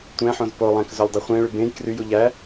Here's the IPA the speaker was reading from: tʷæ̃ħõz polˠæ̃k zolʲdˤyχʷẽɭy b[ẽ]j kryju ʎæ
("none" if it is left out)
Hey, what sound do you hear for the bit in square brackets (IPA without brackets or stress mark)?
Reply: ẽ